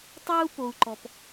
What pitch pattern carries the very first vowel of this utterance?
high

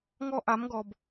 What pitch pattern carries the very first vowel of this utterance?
high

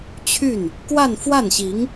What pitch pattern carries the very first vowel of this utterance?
falling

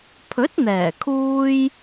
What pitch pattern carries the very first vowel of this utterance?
rising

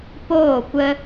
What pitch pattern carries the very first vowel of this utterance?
falling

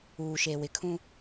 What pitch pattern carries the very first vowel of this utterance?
low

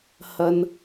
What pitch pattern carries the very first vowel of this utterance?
low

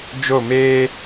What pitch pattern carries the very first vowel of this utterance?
falling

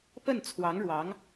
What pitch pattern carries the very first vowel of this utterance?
falling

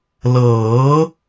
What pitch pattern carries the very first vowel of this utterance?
rising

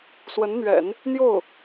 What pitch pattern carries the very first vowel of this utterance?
rising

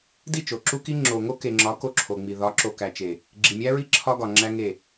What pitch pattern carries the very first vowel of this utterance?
falling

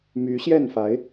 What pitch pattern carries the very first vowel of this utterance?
rising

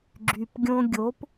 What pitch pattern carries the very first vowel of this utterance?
low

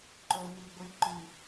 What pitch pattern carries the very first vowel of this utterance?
low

